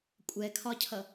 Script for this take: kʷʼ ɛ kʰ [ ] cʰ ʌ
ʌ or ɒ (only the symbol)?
ɒ